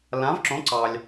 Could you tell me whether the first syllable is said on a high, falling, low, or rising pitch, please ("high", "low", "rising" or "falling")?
rising